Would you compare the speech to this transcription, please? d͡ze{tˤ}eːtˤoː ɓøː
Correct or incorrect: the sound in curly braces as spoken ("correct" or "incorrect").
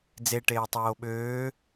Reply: incorrect